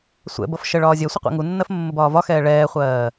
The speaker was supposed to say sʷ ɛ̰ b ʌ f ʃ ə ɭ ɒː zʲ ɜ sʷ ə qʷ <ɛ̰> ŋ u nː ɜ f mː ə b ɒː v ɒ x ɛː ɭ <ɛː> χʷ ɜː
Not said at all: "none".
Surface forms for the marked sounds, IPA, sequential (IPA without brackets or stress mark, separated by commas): ɛ̰, ɛː